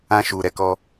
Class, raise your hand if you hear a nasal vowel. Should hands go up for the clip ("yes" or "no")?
yes